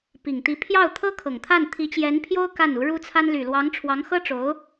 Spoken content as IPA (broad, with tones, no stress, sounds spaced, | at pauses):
p i˨˩ ŋ t̪ i˧˥ pʰ j ɑ˥˩ ʊ̯ t̪ʰ ɤ˥ kʰ ɤ˨˩ ŋ t̪ʰ a˥˩ n t̪ʰ i˧˥ t͡ɕ j ɛ˧˥ n pʰ j o˥ ʊ̯ k a˥˩ n u˧˥ ɻ u˥ t͡sʰ a˥ n l y˨˩ l w ɑ˧˥ ŋ ʈ͡ʂʰ w ɑ˧˥ ŋ x ɤ˥ ʈ͡ʂ o˧˥ ʊ̯